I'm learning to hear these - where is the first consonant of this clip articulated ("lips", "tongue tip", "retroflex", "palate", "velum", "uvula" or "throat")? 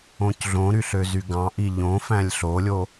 palate